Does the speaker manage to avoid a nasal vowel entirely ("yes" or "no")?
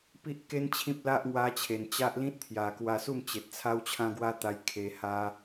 no